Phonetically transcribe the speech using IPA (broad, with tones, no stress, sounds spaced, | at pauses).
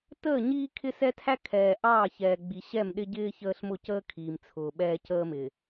t əː˦˨ ɲ iː˦ kʰ ɪ˦ s ɛ˦ tʰ æ˦ kʰ ɛː˨ ʔ ɑː˦˨ ç ɛː˨ ɡ͡b i˨ ɕ ɛ˦˨ m ɗ ɪ˦ ɟ ɪː˦ ç əː˦ ɬ m ʊ˦˨ c əː˦ kʰ iː˨ m t͡sʰ ʊː˨ ɓ ɛː˦ c əː˦ m ɪ˨